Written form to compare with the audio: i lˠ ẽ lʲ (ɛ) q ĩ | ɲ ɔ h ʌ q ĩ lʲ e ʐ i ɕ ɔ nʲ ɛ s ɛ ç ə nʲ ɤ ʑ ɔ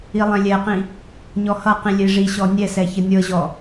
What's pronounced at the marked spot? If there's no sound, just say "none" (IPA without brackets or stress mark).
ɛ